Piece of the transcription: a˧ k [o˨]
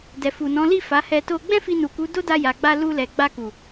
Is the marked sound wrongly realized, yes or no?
yes